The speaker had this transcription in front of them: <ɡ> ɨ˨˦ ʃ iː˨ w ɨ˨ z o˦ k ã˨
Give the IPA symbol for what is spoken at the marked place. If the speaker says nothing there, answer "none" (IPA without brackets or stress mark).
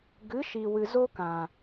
ɡ